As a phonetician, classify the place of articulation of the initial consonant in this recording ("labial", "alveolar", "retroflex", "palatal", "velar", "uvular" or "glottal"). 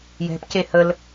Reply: palatal